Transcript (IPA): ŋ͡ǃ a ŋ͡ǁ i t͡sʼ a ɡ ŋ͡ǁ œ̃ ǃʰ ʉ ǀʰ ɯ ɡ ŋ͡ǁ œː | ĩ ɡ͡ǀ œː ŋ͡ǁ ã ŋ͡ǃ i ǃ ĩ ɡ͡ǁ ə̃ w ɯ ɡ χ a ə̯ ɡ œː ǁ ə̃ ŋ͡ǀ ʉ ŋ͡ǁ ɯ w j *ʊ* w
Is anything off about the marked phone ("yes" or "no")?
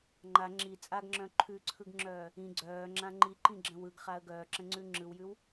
yes